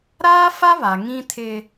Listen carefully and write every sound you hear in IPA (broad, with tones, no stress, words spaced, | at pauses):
ɾaː˦fa˦βa˨ ŋĩ˦tʰɪ˦